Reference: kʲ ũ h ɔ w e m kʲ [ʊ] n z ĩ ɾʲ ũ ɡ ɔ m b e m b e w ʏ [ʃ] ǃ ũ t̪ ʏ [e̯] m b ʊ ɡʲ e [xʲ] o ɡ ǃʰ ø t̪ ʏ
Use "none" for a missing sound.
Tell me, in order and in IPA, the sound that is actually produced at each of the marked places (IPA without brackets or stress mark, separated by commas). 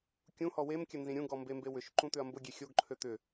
ə, ʃ, ɐ̯, xʲ